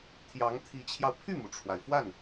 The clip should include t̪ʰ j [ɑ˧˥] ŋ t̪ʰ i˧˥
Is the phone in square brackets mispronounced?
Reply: no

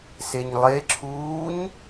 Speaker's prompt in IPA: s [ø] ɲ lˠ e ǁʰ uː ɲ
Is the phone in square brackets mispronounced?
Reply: yes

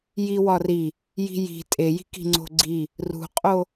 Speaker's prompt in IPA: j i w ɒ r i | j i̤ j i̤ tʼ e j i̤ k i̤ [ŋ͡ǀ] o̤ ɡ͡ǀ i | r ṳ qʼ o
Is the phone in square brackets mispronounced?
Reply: no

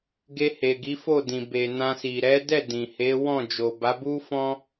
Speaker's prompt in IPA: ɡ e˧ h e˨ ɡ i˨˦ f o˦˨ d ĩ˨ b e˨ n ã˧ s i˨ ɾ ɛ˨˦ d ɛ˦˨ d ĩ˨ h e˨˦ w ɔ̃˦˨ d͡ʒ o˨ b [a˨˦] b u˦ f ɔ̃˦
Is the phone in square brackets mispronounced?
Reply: no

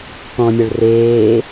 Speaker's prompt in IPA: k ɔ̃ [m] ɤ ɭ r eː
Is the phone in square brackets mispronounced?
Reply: yes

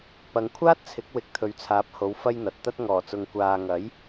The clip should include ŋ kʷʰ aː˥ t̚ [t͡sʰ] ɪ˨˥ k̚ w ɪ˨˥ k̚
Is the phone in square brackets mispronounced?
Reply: no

